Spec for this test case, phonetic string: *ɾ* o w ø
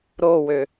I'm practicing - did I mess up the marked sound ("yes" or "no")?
no